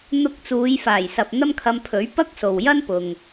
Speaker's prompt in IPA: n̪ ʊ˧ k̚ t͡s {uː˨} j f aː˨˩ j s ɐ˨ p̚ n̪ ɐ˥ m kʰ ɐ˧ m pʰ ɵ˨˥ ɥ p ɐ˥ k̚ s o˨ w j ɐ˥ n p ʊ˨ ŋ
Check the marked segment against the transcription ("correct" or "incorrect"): incorrect